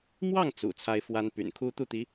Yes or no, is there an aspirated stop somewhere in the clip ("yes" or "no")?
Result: yes